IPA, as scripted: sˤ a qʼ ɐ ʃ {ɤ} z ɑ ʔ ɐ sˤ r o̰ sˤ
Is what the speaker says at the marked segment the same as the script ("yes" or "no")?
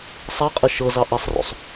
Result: yes